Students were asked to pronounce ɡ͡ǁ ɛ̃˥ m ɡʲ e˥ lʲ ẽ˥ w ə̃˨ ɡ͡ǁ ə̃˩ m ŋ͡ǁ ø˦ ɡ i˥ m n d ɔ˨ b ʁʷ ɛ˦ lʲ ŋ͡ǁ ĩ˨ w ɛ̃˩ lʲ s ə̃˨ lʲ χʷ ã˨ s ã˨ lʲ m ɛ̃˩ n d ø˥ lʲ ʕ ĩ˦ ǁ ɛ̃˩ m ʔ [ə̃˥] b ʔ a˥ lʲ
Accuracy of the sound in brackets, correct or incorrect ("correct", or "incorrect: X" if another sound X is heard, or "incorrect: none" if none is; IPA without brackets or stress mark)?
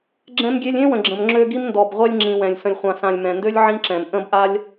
correct